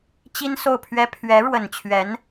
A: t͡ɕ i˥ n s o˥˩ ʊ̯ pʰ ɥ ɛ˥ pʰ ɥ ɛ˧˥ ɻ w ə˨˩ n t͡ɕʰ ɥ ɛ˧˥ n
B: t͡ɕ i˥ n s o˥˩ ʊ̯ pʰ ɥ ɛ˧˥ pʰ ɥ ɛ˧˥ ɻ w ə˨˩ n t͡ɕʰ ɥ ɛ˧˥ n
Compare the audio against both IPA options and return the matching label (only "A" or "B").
A